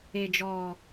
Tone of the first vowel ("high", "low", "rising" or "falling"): low